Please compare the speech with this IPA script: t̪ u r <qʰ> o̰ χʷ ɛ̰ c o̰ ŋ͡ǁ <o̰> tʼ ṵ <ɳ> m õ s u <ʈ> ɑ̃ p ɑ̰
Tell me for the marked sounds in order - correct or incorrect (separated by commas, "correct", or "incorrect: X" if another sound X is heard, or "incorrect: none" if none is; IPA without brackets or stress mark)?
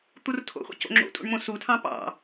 incorrect: tʰ, correct, correct, incorrect: tʰ